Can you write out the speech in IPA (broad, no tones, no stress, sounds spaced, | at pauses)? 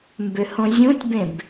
m b ʏ h õ zʲ ũ tʲ b ẽ b